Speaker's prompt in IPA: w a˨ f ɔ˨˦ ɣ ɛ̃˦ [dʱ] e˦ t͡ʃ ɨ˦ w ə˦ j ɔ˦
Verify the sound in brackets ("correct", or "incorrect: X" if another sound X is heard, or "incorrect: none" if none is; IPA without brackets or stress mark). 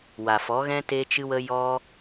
incorrect: t